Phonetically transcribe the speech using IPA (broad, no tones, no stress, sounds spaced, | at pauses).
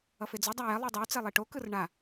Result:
ʌ f e d͡z o dˤ a j ɛ lˠ i dˤ ɛ u̯ t͡s ɛ lˠ e ʈ o k ɯ r ɳ a